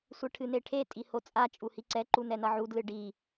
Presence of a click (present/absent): present